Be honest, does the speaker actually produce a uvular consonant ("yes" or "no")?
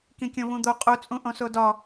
yes